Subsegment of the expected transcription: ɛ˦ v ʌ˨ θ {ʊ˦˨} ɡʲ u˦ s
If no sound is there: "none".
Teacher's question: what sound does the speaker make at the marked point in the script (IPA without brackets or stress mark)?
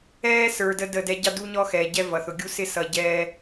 ʊ˨